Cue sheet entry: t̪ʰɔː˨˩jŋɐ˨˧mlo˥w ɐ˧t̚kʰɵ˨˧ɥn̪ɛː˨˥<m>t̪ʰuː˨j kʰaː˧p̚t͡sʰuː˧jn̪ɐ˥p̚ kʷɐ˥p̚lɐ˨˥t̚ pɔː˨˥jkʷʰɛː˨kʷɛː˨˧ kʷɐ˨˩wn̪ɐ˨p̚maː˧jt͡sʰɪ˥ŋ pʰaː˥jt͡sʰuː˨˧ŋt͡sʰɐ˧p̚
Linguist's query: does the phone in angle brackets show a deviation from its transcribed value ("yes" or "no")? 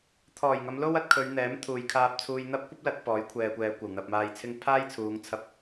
no